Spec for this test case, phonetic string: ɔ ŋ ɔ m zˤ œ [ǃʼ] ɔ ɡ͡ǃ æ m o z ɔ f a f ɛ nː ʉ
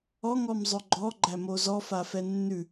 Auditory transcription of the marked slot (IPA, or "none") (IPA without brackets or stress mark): ɡ͡ǃ